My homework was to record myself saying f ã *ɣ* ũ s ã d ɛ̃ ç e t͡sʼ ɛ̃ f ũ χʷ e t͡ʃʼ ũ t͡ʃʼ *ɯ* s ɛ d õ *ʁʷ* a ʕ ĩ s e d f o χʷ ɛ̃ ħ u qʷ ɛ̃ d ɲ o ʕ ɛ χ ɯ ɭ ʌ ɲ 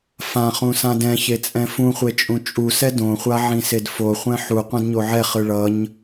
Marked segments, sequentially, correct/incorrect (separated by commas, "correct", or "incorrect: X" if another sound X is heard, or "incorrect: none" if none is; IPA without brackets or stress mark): incorrect: χ, incorrect: u, incorrect: χʷ